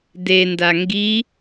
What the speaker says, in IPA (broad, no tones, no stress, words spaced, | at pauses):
denda ŋɡi